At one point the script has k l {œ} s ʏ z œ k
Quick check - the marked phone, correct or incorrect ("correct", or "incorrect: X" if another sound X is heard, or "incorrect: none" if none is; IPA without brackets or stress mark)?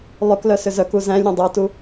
correct